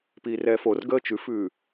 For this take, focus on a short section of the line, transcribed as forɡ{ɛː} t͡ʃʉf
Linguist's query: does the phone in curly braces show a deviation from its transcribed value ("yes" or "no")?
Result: yes